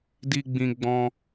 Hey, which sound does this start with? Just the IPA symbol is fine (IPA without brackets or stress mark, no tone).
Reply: d